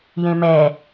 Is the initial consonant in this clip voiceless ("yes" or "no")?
no